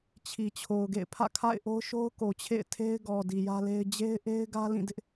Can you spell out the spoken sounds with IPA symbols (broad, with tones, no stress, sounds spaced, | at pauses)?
t͡ɕʰ i˨ t͡ɕʰ o˨ ʊ̯ ɡ ḛ˦˨ ɪ̯ pʰ ä̰˦˨ kʰ a̰˦˨ ɪ̯ ʔ o˦ ʊ̯ ʃ o˦ ʊ̯ k o˨ t͡ɕʰ ḛ˦˨ ɪ̯ tʰ e˦ ɪ̯ ɡ ɔ˨ d i˨ j ä˦ l e˦ ɪ̯ d͡ʑ e˦ ɪ̯ ʔ e˦ ɪ̯ ɡ ä˦ l ĩ˦˨ d ɪ˦ ʔ